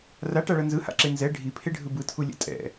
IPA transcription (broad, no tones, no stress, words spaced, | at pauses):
raʈaɭʌ nzɯha̰ǁe nzɛ ɖʱipʰeɖʱɯ bɯtʰulʲɛ̰ tʼɛ̰